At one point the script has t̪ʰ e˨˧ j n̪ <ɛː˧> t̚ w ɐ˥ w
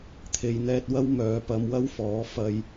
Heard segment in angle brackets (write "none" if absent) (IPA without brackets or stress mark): ɛː˧